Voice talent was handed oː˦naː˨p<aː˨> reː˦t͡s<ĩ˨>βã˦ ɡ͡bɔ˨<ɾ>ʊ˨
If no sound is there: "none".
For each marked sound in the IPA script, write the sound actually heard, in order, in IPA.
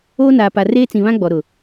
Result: a˨, ĩ˨, ɾ

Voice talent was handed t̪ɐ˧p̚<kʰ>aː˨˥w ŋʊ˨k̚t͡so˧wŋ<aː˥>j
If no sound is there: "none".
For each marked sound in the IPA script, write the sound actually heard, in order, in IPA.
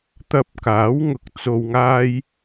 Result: k, aː˥

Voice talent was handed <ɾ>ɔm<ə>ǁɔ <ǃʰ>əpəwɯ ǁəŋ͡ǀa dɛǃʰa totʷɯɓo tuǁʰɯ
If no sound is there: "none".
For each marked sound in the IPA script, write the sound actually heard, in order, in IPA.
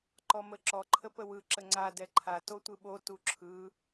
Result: ǃ, ə, ǃʰ

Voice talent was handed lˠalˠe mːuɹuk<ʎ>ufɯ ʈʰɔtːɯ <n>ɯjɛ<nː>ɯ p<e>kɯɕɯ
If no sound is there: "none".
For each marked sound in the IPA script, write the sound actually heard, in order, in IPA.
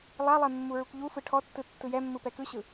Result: ʎ, tː, mː, ɛ

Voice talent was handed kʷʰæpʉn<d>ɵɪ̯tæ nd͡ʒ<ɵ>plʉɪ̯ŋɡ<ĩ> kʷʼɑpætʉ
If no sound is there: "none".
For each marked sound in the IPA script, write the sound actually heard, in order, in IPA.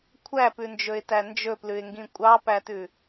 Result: d͡ʒ, ɵ, ĩ

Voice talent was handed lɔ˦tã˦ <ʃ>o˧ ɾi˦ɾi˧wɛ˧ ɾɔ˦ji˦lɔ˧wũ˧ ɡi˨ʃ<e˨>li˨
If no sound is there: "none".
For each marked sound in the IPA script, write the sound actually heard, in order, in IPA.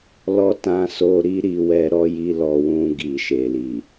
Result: s, e˨

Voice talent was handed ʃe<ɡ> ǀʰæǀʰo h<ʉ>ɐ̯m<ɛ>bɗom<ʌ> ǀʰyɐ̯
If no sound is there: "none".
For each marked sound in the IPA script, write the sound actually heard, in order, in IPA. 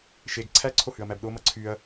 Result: ɡ, ʉ, æ, ʌ

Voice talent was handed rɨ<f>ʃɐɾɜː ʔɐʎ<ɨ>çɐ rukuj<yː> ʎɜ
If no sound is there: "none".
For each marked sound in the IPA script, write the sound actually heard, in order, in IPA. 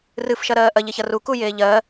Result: f, e, eː

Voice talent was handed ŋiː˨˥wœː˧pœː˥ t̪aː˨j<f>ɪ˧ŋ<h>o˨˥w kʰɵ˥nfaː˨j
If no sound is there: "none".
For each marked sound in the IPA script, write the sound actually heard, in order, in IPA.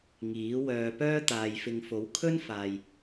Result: f, f

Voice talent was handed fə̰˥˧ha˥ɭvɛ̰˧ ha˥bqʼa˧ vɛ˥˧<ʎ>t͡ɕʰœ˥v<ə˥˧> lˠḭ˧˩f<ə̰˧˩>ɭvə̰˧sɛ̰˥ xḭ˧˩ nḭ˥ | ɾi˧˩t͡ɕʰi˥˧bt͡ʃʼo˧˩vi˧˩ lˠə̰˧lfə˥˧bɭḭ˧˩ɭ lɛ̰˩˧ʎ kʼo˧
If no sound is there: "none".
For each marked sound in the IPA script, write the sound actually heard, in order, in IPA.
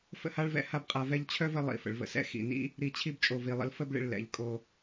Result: ʎ, ə˥˧, ə̰˩˧

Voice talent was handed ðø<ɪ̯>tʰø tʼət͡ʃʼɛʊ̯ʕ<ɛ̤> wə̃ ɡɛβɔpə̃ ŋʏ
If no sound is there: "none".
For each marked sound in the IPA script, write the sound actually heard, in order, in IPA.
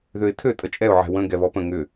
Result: ɪ̯, ɛ̤

